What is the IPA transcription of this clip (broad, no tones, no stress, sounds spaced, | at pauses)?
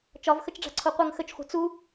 t͡ʃ ɒ v x ə t͡ʃ ɖ͡ʐ a̤ ǀʰ o qʷ ə ŋ x ə t͡ʃ χʷ i̤ t͡s u